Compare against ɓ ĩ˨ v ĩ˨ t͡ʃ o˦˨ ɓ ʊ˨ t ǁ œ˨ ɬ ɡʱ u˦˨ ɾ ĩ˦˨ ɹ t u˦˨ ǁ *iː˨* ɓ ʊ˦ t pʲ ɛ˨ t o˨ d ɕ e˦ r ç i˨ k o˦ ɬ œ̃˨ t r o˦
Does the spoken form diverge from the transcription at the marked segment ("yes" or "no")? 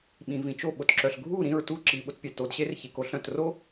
yes